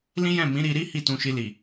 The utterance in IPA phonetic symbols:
l ĩ˦ j ɛ̃˦˨ m ĩ˨˦ ɾ i˧ ɾ i˦ h i˦˨ t ũ˧ ʃ i˧ l i˨

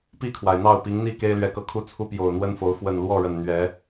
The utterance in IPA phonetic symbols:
p i˥˨ kʰ w a˩ ɪ̯ n̪ ɑ˥˨ ʊ̯ p i˨˦ ŋ n̪ i˥˨ k e˦ ɪ̯ l ɥ ɛ˨˦ k ɤ˨˦ kʰ u˥˨ t͡sʰ u˦ p j o˨˩ ʊ̯ n̪ w ə˦ n f o˨˦ ʊ̯ f w ə˨˩ n l w ɔ˥˨ ɻ ə˨˩ n n̪ ɥ ɛ˨˦

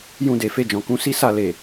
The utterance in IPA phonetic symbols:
j ũ˧ d e˨ f e˧ d͡ʒ ɔ̃˨ k ũ˨˦ s i˦ s a˦˨ l e˨

